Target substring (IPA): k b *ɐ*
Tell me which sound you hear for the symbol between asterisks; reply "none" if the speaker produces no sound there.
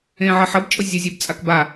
a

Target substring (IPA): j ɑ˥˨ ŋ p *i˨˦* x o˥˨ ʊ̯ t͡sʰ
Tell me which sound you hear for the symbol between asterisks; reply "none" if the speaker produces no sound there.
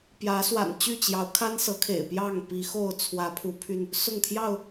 i˨˦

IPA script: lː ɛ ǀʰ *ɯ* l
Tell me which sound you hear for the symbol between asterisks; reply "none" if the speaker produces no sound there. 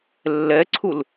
u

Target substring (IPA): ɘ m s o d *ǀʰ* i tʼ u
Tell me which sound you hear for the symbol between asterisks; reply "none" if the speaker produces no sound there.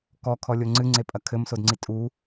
ŋ͡ǀ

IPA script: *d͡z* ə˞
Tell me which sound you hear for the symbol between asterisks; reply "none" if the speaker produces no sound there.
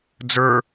d͡z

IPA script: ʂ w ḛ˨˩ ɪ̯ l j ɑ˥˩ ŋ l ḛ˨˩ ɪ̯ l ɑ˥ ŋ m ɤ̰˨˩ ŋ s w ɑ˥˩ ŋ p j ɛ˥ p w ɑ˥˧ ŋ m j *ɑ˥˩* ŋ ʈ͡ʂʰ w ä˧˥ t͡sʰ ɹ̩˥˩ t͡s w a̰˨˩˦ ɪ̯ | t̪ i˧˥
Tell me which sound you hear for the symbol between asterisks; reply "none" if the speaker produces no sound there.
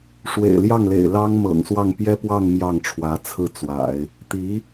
ɑ˥˩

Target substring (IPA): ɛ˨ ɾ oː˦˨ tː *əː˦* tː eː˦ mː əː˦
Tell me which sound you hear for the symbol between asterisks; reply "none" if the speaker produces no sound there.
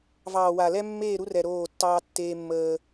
ɑː˦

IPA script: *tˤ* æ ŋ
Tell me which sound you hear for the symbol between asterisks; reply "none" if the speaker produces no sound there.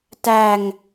t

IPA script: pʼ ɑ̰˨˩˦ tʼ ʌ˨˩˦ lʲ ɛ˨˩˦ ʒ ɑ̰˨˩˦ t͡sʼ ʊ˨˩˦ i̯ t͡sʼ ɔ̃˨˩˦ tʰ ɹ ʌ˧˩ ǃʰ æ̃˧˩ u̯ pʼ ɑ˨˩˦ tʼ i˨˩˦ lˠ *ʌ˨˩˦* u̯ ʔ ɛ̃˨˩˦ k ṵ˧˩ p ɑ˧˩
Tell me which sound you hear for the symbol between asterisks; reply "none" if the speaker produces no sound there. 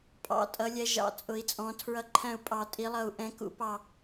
ʌ˧˩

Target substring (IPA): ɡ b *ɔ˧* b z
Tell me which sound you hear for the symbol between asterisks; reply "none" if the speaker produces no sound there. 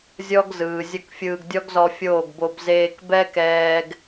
o˧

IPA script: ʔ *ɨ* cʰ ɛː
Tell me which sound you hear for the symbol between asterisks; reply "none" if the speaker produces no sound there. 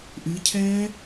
ɨ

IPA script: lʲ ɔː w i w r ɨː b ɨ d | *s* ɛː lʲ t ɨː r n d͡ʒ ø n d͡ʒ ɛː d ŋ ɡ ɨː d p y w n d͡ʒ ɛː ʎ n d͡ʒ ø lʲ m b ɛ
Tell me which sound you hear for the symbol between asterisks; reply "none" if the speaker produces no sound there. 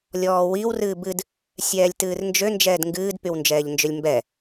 sʲ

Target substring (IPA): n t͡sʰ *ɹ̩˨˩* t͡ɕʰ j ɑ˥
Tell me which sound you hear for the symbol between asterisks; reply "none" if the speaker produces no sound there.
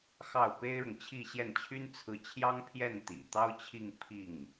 ɹ̩˥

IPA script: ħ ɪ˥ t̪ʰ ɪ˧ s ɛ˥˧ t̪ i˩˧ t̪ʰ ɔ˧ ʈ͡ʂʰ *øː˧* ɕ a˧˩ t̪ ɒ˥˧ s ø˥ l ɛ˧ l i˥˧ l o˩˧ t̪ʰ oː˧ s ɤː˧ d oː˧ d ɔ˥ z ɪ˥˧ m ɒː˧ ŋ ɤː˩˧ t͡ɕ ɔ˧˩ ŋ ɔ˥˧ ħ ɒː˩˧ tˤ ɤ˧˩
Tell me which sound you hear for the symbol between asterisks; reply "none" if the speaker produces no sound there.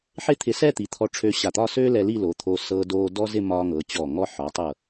øː˧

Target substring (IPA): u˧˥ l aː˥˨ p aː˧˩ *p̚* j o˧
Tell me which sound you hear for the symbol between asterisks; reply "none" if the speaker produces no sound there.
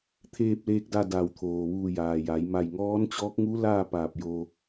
p̚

